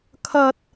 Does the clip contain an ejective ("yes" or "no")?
no